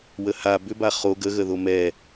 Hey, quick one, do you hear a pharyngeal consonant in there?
no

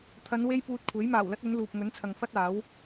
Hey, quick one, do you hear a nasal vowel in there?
no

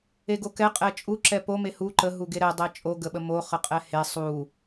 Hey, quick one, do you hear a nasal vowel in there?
no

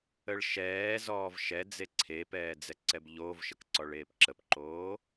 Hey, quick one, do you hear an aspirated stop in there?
yes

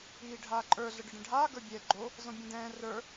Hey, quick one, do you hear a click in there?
yes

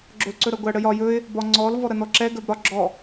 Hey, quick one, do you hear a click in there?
yes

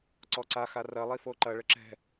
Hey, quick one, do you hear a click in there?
yes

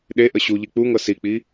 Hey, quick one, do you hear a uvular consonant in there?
no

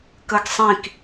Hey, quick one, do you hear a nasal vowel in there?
yes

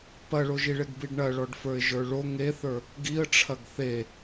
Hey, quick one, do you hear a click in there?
no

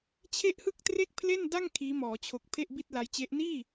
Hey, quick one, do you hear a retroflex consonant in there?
no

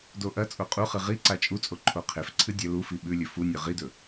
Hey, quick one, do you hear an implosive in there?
yes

